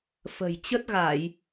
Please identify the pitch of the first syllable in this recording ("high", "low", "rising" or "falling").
low